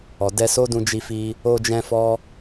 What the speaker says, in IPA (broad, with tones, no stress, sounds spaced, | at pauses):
ɔ˨ d ɛ˧ s o˦ d ũ˧ d͡ʒ i˧ f i˧ | o˧ d͡ʒ ɛ̃˧ f ɔ˦